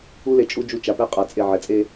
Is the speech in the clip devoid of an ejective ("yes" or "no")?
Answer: no